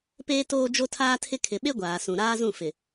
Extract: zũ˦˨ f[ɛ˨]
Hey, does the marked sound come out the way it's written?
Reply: no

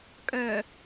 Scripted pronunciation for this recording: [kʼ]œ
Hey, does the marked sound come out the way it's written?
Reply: yes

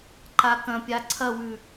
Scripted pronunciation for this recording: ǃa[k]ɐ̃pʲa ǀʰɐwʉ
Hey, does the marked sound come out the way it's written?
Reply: yes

